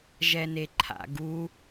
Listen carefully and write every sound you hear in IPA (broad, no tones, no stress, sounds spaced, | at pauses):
ʒ ɛ n e ǃʰ a̰ ɡ u